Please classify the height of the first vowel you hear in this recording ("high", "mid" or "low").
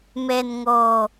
mid